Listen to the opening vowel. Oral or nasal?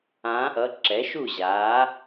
nasal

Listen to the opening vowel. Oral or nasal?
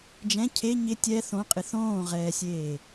nasal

